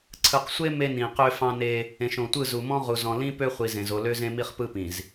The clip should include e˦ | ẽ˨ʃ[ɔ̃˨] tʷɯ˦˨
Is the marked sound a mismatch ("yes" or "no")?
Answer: yes